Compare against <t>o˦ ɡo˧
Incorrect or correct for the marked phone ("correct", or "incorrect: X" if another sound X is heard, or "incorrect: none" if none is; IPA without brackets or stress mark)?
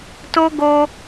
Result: correct